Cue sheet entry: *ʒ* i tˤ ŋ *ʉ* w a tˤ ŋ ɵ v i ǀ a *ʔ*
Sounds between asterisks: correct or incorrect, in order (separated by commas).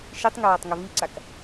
incorrect, incorrect, incorrect